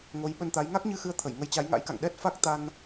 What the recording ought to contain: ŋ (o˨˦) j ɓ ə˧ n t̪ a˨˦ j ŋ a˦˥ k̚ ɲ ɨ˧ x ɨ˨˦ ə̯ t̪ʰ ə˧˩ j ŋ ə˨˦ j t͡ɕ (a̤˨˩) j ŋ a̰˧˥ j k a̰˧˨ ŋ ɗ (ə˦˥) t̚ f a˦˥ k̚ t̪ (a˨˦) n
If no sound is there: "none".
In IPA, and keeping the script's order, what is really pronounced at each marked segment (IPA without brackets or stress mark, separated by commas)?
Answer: o˨˦, a˨˦, ɛ˦˥, a˧